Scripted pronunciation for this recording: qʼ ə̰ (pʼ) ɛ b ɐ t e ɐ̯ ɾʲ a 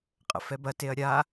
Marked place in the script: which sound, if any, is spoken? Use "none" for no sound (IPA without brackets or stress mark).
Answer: f